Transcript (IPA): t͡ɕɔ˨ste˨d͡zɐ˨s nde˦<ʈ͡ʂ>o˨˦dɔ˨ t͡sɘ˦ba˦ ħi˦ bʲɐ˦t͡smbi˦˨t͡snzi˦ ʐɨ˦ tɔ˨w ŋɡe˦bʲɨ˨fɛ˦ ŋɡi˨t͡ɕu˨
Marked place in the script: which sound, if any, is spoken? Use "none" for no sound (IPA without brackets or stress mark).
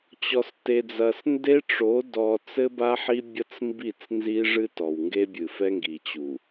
ʈ͡ʂ